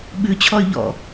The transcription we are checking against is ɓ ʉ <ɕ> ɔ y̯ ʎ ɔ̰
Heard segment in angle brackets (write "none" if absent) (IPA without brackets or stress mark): t͡ɕʰ